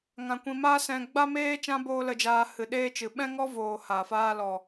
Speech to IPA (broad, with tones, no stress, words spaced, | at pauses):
ŋã˧kʷĩ˧ ma˦sɛ̃˧ ɡ͡ba˦meː˦ t͡ʃã˦boː˦lə˧d͡ʒaː˧ hɨ˨ɗeː˧t͡ʃɨ˨ ɓɛ̃˦ŋɔ˦voː˨ ha˨faː˧lɔ˨